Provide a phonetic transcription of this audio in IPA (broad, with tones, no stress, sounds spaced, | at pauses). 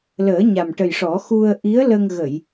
l əː˨˩˦ ɲ a˨˩ m ʈ ə˨˩ j ʂ ɔ˨˩˦ x u˧ ə̯ ʔ i˧˥ ə̯ l ə˧ ŋ ɣ ə˨˩˨ j